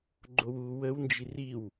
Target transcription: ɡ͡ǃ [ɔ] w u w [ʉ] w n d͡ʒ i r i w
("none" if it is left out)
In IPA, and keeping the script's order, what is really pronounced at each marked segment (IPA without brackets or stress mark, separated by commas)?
o, ə